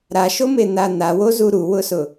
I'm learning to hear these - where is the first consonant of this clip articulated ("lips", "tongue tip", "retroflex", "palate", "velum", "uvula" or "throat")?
tongue tip